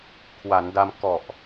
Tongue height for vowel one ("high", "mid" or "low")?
low